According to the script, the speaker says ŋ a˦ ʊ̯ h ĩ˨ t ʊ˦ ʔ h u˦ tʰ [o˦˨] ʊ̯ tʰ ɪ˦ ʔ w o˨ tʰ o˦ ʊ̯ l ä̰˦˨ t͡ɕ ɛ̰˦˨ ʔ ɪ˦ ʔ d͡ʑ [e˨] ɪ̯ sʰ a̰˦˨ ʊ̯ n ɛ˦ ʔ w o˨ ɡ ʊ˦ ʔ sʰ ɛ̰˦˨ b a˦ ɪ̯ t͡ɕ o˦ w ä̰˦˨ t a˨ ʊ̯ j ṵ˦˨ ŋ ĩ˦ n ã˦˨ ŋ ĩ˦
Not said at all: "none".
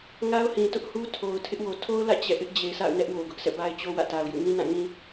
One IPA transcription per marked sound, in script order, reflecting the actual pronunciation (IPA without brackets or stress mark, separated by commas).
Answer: o˨, e˨